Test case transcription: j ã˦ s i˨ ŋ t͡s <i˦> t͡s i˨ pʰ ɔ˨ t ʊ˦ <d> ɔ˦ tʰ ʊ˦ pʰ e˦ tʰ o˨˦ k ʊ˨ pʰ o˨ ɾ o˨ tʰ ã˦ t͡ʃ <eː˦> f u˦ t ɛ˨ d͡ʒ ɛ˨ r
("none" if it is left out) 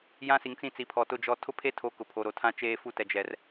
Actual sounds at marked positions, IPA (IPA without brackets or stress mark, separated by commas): ĩ˦, d͡ʒ, eː˦